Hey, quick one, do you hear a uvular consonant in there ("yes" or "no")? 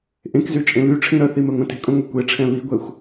no